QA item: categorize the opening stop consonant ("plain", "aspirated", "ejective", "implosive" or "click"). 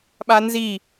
implosive